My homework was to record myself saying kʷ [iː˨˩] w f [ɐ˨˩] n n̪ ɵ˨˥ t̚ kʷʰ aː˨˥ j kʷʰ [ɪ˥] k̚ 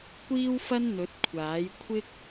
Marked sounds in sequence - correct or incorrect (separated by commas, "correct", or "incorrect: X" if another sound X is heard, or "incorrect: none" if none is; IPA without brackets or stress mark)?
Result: incorrect: iː˥, incorrect: ɐ˥, correct